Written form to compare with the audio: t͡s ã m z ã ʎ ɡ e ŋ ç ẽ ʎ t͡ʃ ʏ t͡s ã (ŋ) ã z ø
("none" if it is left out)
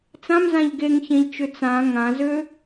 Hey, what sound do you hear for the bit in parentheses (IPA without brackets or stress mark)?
ŋ